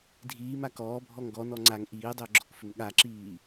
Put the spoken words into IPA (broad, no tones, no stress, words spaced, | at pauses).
dʱiːma kɔːbʱɔŋ ɡɔnɔ ŋ͡ǀaŋ ʔiːdˤʏːɡ͡ǁɔkfʏm ɠaǁiː